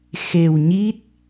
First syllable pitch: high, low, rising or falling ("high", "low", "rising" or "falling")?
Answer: low